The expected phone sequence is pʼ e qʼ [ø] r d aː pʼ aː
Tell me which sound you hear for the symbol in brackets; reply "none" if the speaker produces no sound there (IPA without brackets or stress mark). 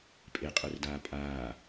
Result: ø